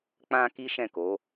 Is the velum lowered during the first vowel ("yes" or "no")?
yes